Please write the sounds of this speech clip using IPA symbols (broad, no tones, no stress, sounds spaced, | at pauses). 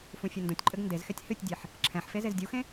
f ũ fʲ ɘ n d ũ tʲ ǃʼ ɘ ɡ n d e z x ɛ tʲ h ɨ tʲ dʲ e ħ | ǁʰ ɛ̃ ħ f e z e z dʲ u x ẽ